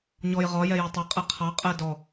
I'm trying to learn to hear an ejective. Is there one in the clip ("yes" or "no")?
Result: yes